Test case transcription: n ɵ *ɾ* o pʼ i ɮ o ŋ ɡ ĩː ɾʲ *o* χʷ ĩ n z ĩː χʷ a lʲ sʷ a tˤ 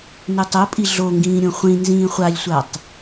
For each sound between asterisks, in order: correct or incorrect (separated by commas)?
incorrect, incorrect